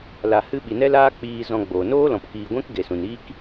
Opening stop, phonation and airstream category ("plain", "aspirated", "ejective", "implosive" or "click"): implosive